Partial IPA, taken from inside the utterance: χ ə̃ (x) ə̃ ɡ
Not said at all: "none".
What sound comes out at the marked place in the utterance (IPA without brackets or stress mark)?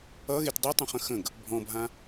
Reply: x